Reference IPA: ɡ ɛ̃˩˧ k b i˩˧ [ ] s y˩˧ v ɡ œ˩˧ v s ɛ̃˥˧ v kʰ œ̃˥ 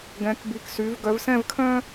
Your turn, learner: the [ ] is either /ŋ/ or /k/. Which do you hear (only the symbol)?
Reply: k